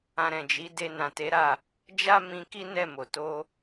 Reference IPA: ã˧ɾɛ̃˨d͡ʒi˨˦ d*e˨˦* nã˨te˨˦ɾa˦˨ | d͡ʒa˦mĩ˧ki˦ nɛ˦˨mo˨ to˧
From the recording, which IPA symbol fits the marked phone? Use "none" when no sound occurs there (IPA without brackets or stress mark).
e˧